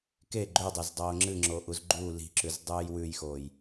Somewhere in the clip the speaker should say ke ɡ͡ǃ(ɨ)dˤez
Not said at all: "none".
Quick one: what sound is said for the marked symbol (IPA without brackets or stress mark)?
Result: ʉ